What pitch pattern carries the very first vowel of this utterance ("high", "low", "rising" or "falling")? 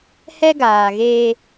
high